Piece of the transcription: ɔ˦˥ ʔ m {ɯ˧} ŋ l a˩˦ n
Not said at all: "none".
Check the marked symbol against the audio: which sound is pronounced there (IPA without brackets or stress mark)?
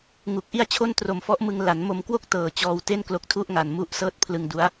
ɯ˧